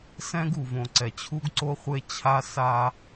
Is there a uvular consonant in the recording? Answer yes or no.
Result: yes